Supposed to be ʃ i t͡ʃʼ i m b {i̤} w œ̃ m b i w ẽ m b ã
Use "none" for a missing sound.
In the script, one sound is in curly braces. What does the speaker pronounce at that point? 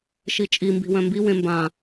i̤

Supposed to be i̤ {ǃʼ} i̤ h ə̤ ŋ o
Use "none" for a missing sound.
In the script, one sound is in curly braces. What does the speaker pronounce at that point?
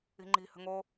ŋ͡ǃ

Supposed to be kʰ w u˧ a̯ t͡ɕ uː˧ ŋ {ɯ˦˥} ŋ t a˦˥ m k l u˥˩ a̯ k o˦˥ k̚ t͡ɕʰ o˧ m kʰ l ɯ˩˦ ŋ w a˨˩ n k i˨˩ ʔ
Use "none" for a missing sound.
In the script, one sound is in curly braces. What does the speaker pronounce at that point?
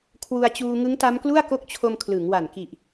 ɯ˦˥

